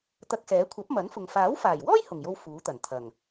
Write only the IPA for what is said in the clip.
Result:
t̪ ɐ˧ k̚ s ɛː˨˥ kʷʰ ɐ˨˥ p̚ m ɐ˨˥ n f ʊ˨ ŋ f aː˨˥ w f aː˨˩ j w ɔː˥ j h ʊ˨˩ ŋ j o˧ w f uː˨˥ t̪ ɐ˨˩ n t̪ʰ ɐ˨˩ ŋ

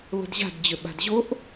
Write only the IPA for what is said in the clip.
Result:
β ə̤ d ʑ a̤ d d͡ʑ ʏ ɓ a̤ d ʑ o ʔ

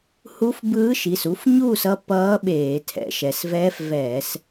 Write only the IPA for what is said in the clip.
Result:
h u˧˥ f b ɯː˧˥ ʃ i˩˧˩ s u˧˥ f ɲ uː˥˨ s ʌ˥˨ p ʌː˧˥ ɓ eː˧˩˧ tʰ ɛ̰˩˧ ʃ ɛ˩˧ s v ɛː˧˥ f v ɛː˧˩˧ s

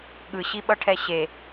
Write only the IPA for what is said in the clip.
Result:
ɠ ɯ ɕ i ɓ ʌ ʈʰ ɛ ɕ e

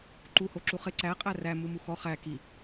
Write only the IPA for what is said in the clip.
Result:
ǃ u h o ǁ u χ ɪ ǀ æ qʼ æ r æ m u m u x ɔ χ æ k i

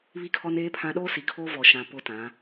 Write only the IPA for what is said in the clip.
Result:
β i˦ kʰ ɔ˦ n eː˦ pʰ ã˦ ɗ oː˦ s i˨ kʰ oː˦ v ɔ˨ ʃ ã˨ p ʊ˦ t ã˨˦

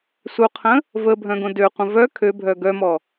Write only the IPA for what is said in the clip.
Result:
s u qʰ ə̃ | v ə bʱ œ̃ ɡ õ d ø qʷ ə̃ v œ kʰ ø bʱ œ ɡ œ m ɔ

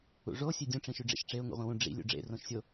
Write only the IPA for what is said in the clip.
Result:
ṵ ʐ o sʲ ø dʲ ũ ʈ͡ʂ ĩ ʃ y ɖ͡ʐ ḭ ʃ ʈ͡ʂ e ʊ̯ ŋ ṵ ʁʷ ĩ w ũ ɖ͡ʐ ḭ lʲ ṵ ɖ͡ʐ ḛ r õ ʃ sʲ o

